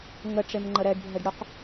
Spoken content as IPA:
ŋ ə ʈ͡ʂ e m ŋ͡ǃ ə ɾ ɛ ɖ bʱ ɛ ɖ ɽ ʊ q

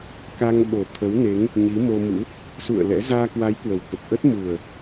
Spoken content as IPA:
k a˧ ŋ ɓ o˨˩ t̪ʰ ə˨˦ w n e˨˦ ŋ | ɲ i˨˦ m o˧ m ṵ˧˥ | s ṵ˧˨ ə̯ l ɛ̰˧˥ z aː˧ k w a˨˦ j k w ə˨˩ w k ə˨˩ p̚ ʔ ə˦˥ t̚ m u˨˩ ə̯

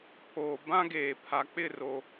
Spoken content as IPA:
pʰ oː˨ b ã˦ ɡ eː˨ pʰ a˨ k͡p ɪ˦˨ r o˨

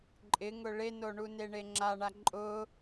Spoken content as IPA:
ǃʼ ɪ ŋ ʊ ɭ e n o ɳ u n e ɳ e ŋ͡ǁ a ɳ a ǃʼ ʊ

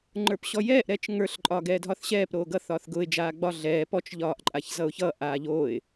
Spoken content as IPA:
ŋ͡ǃ ə˞ p ɕ ɔ j ɛː ʔ ɾ ɛː t͡ʃ ŋ ə˞ ɬ ǃʼ ɒː ɡ ɛː dʱ ɒ θ ɕ ɛː p ɾ oː ɡ ʌ θ ɒː θ ɡ ʊː ɪ̯ d͡ʒ aː ɡ͡b ɒ ɮ ɛː p ɔ t͡ʃ ʎ ɒː ʔ ǃʼ a ç z ʌ ʊ̯ ç ʌ ʔ aː ʎ oː ɪ̯

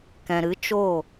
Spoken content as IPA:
k ɛ̃˨ ɾ ɨ˨˦ t͡ʃ o˦˨

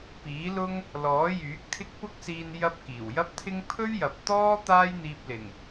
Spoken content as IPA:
p iː˨˥ l ʊ˥ ŋ | l ɔː˨˥ j yː˨˥ k̚ t̪ʰ ɪ˥ k̚ p ʊ˥ k̚ s iː˧ n j ɐ˧ p̚ k iː˨˩ w j ɐ˥ p̚ t̪ʰ ɪ˥ ŋ pʰ ɵ˥ ɥ j ɐ˨ p̚ t̪ ɔː˥ t̪ aː˥ j n̪ iː˧ p̚ l ɪ˨˩ ŋ

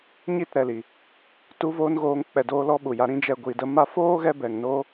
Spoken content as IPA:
ɲ i˦˨ t ɾ ɛ˨ l i˨ | t u˦ v oː˦ n ɣ oː˧ ŋ k͡p ɛ˨ d oː˧ l ɔ˦ ɓ u˨ j a˧ ɾ ĩ˧ d͡ʒ ɛ˨ ɡʷ i˨ d ə˧ m a˧ f oː˦ ɣ ɛ˧ b ɛ˨ ŋ n o˦

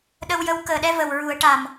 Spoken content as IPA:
ɗ ə˧ w j ə˧˥ w k əː˨˩ ɗ ɛ˧ v ə˨˩ w ɹ u˨˩˦ ə̯ ʈ a˨˩ m

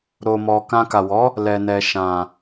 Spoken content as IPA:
ɾ o˨ m ɔ˨ k ã˧ k a˨ w ɔ˨˦ | l ɛ˨ n ɛ˨ ʃ ã˨

